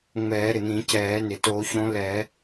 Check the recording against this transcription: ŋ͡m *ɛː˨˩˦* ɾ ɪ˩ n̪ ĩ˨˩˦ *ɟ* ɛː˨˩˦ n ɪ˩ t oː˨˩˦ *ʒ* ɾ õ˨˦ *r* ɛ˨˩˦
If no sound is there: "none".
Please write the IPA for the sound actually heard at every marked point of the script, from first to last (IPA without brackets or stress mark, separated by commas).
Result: ɛː˨˩˦, c, ç, l